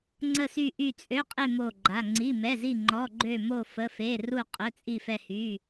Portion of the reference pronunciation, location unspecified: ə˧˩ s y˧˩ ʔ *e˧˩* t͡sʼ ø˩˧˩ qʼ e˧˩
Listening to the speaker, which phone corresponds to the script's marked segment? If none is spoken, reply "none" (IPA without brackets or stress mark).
y˧˩